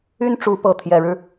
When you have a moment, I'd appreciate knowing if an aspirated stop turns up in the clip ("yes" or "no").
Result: yes